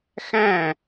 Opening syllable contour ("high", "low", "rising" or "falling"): falling